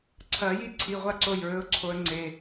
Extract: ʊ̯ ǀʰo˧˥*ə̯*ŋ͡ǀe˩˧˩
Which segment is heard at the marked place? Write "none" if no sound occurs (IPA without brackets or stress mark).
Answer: ə̯